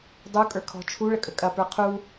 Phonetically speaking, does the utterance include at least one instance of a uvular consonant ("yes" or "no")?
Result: yes